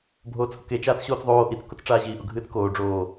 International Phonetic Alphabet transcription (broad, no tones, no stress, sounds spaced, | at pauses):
bʱ oː t͡s h ʊ k e t͡ʃ aː t͡s ɕ oː t͡s ðˤ oː ʔ i t͡s k ʊ t͡s ʈ͡ʂ aː ʑ iː ʔ ʊ ɡʱ ɨː t͡s k oː ɖ͡ʐ oː